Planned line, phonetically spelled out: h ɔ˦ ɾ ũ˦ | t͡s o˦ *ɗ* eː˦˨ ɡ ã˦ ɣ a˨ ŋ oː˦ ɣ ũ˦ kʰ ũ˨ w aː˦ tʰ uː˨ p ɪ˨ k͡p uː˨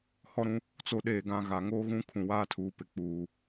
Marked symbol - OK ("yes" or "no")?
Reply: yes